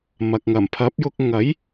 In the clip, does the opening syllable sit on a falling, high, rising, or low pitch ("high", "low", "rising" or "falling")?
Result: low